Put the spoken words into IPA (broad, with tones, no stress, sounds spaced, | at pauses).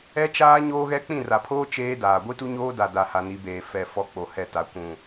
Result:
ɛ˦ t͡ʃ aː˦ ɲ oː˦ ɣ ɛ˦ k͡p ĩ˦˨ r a˨ pʰ oː˦ t͡ʃ eː˦ d aː˨ ɡʷ i˦ t u˦ ɲ oː˦ d a˨ d a˨ h a˨ n i˨˦ b eː˨ f ɛ˦˨ f ɔ˦ k͡p o˨ h ɛ˦˨ t a˨˦ kʷ ũ˦˨